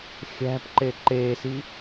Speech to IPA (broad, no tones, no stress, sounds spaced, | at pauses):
xʲ æ̤ p ǃ e ǃ e s i